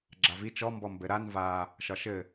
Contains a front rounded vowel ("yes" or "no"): no